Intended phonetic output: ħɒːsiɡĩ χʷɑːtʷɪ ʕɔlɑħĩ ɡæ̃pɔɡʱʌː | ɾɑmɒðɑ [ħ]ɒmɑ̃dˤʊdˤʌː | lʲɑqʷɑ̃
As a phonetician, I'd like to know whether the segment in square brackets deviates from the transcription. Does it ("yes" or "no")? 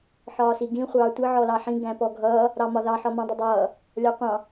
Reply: no